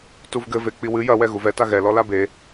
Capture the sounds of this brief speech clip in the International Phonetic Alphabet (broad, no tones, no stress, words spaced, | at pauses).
tuvɡɘve k͡piwɨ jɐwɛ ɣuvɛta ɣɛ lɔlabe